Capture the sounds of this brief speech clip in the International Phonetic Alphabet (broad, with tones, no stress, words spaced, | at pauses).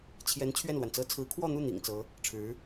t͡ɕʰjɛ˧˥n t͡ɕʰɥɛ˥˩nlwa˩nt͡sɤ˥˩ t͡sʰɹ̩˧˥kʰwɔ˥˧n̪u˥˩ n̪ḭ˨˩ŋt͡sɤ˧˥ | ʈ͡ʂʰɻ̩˧˥